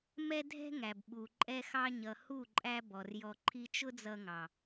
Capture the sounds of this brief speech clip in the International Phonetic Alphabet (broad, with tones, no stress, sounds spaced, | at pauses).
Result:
m ɛ˦ dʱ ɛ̤˦ ŋ æ˨ b ɓ u˨ ǃʼ ɛ˦ x ɑ˦ ɲ ʌ˨ h u˦˨ ǃʼ æ˧ b ɔ˨ r j ɔ˧ ǃʰ i˦ t͡ʃ ʊ˦ d͡z ʌ˧ ŋ ɑ˨